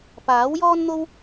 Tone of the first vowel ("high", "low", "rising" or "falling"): rising